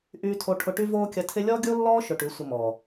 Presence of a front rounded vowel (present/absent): present